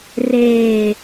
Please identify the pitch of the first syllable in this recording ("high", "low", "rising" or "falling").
low